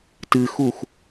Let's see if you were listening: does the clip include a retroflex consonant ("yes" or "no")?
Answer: no